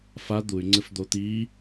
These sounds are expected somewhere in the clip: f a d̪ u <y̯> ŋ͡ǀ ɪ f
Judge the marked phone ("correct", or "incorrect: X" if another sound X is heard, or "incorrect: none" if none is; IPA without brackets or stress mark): correct